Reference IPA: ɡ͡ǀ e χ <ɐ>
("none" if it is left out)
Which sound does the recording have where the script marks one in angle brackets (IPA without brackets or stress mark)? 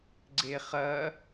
ɐ